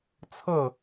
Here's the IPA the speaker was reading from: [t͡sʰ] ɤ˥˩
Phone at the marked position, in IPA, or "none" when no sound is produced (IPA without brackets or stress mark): t͡sʰ